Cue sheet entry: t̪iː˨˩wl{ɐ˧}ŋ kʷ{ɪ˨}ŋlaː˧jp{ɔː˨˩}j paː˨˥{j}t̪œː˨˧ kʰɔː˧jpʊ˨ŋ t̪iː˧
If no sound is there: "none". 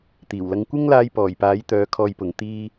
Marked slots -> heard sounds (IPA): ɐ˧, ɪ˥, ɔː˨˩, j

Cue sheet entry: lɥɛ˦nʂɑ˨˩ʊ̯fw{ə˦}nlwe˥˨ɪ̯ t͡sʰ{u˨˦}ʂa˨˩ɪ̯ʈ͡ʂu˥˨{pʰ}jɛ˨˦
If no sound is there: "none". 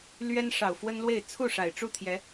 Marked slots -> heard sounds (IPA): ə˦, u˥˨, t̪ʰ

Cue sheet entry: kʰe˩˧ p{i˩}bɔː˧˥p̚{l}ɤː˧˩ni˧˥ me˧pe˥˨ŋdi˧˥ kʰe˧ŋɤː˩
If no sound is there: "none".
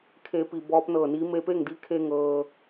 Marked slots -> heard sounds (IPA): i˩, n

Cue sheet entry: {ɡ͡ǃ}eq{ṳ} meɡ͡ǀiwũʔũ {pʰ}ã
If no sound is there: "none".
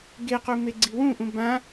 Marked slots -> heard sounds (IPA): ɡ, u, b

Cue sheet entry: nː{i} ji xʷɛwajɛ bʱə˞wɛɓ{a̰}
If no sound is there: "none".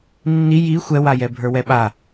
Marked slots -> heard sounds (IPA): i, a

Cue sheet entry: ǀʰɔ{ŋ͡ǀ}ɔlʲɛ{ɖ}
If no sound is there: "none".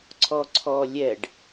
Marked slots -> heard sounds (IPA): ǀʰ, ɖ

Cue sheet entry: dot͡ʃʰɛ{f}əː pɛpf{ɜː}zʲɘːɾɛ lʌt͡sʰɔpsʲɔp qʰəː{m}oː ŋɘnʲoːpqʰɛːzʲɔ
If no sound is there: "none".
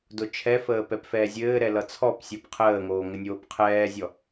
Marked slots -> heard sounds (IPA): f, ɛː, ŋ

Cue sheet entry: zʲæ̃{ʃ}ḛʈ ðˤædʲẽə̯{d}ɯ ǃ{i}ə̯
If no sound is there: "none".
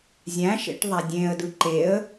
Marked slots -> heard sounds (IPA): ʃ, d, e

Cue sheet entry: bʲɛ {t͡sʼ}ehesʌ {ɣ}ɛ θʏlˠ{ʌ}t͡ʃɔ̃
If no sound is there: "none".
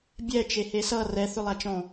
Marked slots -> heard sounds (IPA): t͡ʃ, r, a

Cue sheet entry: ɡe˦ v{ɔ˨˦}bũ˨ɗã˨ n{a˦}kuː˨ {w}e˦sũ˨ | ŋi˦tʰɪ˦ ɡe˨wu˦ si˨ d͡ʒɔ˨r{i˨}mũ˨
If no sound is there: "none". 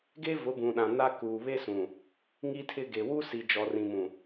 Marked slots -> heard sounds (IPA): ʊ˨˦, a˦, β, ĩ˨

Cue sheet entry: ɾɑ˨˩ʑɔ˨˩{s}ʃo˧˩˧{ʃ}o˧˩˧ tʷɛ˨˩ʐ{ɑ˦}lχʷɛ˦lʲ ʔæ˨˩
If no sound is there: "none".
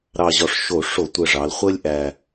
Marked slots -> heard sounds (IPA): ʂ, ʂ, ɑ˩˧

